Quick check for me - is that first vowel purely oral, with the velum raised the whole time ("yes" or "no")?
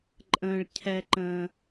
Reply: no